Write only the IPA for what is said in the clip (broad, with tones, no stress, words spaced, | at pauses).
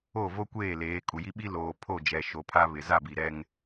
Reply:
o˦˨vo˦kʷeː˦˨leː˨˦ kʼu˨ji˦ɓi˦ loː˨ pʰo˦˨d͡ʒɛ˨ ʃo˨pʰa˦ βɪ˨ za˦˨bi˨ɾɛ˦ŋ